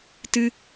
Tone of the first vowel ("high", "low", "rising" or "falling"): high